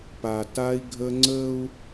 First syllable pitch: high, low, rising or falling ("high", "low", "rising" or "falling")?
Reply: low